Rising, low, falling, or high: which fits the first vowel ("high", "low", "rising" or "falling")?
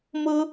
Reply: high